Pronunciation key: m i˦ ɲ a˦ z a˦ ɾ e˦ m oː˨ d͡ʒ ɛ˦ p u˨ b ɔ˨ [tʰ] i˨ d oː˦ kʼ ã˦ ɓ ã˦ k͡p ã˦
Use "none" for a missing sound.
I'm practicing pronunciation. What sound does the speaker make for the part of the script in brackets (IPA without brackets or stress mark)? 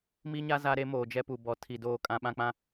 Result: tʰ